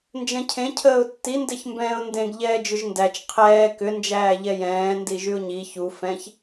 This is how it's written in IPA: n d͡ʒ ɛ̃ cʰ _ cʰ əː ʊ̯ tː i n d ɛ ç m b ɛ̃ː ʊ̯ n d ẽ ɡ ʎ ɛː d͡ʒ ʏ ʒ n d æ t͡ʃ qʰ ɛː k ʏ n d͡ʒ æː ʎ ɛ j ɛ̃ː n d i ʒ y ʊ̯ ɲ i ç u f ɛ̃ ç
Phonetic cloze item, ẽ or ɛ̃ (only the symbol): ẽ